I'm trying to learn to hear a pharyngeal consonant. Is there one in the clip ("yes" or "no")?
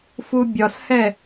no